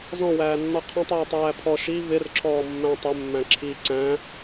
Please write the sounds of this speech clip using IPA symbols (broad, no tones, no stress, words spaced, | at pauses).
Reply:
zɔ̃wæːnːɔ qʰɔ̃tˤjɛ tˤæːpʰɔ ʃi vɪrǁʰɔː mːæ̃tˤʊ mːæ̃ǁʰi ǀæ̃